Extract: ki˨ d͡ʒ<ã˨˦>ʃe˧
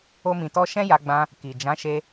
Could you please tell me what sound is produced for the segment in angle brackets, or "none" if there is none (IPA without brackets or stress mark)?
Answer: ã˨˦